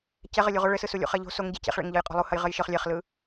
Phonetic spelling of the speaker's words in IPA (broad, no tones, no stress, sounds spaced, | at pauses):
c ɛ ʁ ɘ lʲ u ʁ o ɭ ɘ s ɯ s u lʲ ṵ χ ɛ ʎ o̤ s o ŋ ɟ e c ḛ χ ɭ ḛ ŋ ʎ ɤ j qʼ ɔ̤ lˠ u h ɐ j ʁ ɘ j ʃ ɤ χ lʲ ɛ χ l ɯ